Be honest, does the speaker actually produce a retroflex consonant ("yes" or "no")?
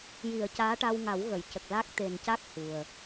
yes